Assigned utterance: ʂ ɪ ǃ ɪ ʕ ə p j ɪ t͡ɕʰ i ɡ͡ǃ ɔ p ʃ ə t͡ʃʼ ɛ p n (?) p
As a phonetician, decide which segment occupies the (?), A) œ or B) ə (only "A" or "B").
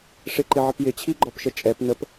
B